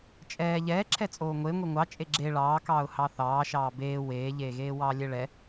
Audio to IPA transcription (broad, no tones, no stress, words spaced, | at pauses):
t͡ʃʼɛː ʎɛːǁʰɛt͡sʼoː ŋʷe ŋʷiŋʷɑ t͡ʃʼeɡ͡ǁe ɭɑːkɑːʊ̯ hɑθɑːʃɑː beː weːʎeːɣeː wɑːlʲɛɭɛ